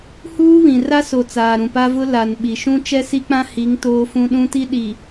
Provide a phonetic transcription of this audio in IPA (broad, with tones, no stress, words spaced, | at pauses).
huː˦βĩ˨ ra˦so˨ t͡saː˨ɾũ˨pa˦vʊ˦ la˨n ɓi˨ʃũ˦ t͡ʃɛ˦si˦k͡pã˦hi˨˦ŋ toː˦fũ˦ɗũ˦ti˦ ɗi˨